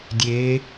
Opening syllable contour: rising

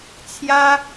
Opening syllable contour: high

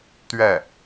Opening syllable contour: falling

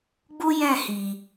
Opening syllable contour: high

